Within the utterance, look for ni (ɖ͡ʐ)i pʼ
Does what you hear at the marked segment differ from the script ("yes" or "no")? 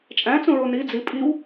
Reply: yes